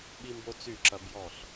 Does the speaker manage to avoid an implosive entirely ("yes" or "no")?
no